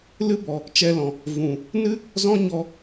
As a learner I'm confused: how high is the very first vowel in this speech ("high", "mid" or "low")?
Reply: high